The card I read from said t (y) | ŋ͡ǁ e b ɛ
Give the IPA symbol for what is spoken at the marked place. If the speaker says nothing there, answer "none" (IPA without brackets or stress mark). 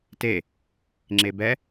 e